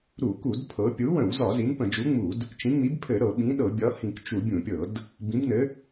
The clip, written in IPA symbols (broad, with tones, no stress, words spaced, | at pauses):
ɾu˧˩˧ku˧˩˧d pʰɤ˨˥ pʲu˨˥wə̃˧˩˧wzɒ˧˩˧ zi˨˥npə̃˧˩˧ d͡ʒu˨˥ŋ͡mu˧˩˧d | t͡ʃĩ˨˥ŋ͡mi˨˥b pʰɘ˧˩˧ ɾɤ˧˩˧ɓĩ˨˥ɗɤ˧˩˧ bʲɒ˨˥hĩ˧˩˧kt͡ʃu˧˩˧ bʲũ˧˩˧pʲɤ˧˩˧d | bĩ˨˥bnɘ˨˥